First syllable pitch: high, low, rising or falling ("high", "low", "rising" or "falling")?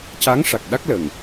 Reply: rising